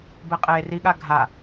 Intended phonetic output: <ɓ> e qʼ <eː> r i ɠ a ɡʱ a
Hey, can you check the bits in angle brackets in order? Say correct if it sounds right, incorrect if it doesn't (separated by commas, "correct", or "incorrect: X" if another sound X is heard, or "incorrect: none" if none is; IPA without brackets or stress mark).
incorrect: b, correct